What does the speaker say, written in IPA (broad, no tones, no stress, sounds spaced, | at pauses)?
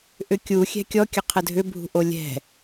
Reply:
ʔ ʏ kʲ u xʲ ɛ̤ kʲ ɔ kʲ ə qʰ ə dʱ ʏ bʱ ṳ ʔ o lʲ ɛ̤